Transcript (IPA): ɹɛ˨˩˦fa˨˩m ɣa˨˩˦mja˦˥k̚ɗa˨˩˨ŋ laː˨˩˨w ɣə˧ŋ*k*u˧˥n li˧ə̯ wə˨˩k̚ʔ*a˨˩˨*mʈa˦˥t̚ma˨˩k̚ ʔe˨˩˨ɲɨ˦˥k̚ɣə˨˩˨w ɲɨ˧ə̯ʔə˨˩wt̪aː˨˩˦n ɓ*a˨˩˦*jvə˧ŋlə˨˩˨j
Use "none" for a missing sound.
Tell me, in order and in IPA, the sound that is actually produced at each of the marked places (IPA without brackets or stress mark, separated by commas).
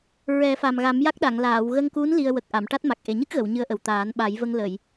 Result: k, a˨˩˨, a˨˩˦